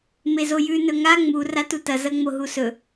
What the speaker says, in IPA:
mezojʉ nɵŋa ŋ͡mu ratutɐ zɐŋ͡moɦusɵ

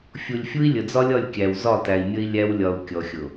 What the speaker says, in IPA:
fʲu˨lʲfʲu˦i̯ lʲə˨d͡zɒ˦lʲɒ˦˨lʲ kʲæ˨wzɒ˦˨tæ˨i̯ mʲə˦i̯lʲæ˦wlʲɒ˨u̯ kʲɔ˨xʲʊ˨

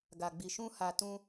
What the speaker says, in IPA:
ɡa˨ɡ͡bi˨ ʃũ˧ ha˨tũ˧

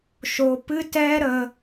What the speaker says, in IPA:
ʃo˧ pɨ˦ tɛ˧ ɾə˧

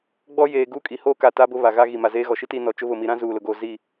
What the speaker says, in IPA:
ɡ͡bɔ˦jeː˨ ɡuː˦kʼi˨hoː˦ ka˨ ta˦bʊ˦ βa˨ɣa˦ ɣi˨ma˨ zeː˦ɣɔ˨ ʃi˦tiː˦ nɔ˨t͡ʃʊ˦βʊ˦˨ mi˨ɾã˦ zuː˨lʊ˨ɡoː˨ zi˦˨

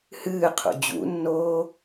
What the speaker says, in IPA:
hɨːqʰṵ d͡ʑṵnːoː

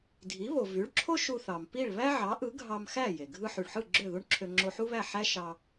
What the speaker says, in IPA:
dʱi˩˥βo˩vy˩˥ɭǁʰo˥ ʃu˧θɑ˩m pi˥˩ɭ βæ˥ʕɑ˩˥ʔɯ˩˥ ɡʱɑ˧mxæ˥˩ je˩ɡʱɯ˥ ħy˩ɭħɯ˥˩ ɡ͡ǁø˥˩ðu˥ɳǁʰø˧ ŋ͡ǁo˧ħu˥βæ˥˩ ħæ˥ ʃɑ˧

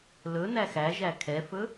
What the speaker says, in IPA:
lɵnæx æʒæ kʰɛfɵ

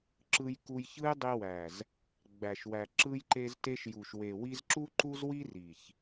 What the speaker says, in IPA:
ǁɯ˧jku˧jçɯ˦j dˤi˧wæ˨z | ɡ͡bæ˨ʃwæ˨ ǁɯ˧jǃe˧zte˧ʃ ju˨ʃwe˨wi˧z ǁu˧ǃu˧zwi˧ ri˨ç

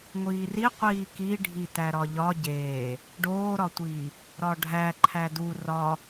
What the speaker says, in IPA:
ŋʷiːri qʷiːki ɖʱitæɾɒʎɒ ɟeː | ɖoːɾɒtʷiː | ɾɒɖʱæ ǃʰædu rɒ

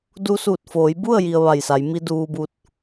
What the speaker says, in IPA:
du˧suː˧˩t̚ foː˩˧jbu˥˨ə̯ ji˧ə̯ʋa˧˩jsa˩˧j mi˧ duː˧bu˧t̚

